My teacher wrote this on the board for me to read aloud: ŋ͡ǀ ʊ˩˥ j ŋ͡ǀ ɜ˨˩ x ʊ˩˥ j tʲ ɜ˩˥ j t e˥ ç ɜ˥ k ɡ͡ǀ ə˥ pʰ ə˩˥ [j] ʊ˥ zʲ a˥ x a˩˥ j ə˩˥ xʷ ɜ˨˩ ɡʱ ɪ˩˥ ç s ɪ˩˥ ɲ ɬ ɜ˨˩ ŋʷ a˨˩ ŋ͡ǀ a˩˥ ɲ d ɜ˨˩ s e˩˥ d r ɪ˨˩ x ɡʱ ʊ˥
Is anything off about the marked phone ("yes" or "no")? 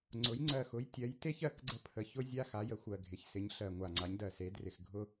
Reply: yes